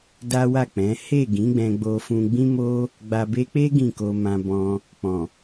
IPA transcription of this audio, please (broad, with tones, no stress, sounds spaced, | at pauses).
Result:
d a˦ w a˦˨ k͡p ɛ̃˨˦ h e˦˨ ɡ ĩ˨˦ ɡ͡b ɛ̃˧ ɡ͡b o˧ f ũ˧ ɡ͡b ĩ˦ m o˦ | ɡ͡b a˨ b e˧ k͡p e˦ ɡ ĩ˦˨ k o˧ m ã˧ b ɔ̃˧ | k͡p ɔ̃˨